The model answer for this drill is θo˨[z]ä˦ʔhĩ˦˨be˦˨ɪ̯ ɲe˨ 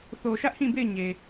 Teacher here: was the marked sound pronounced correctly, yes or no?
no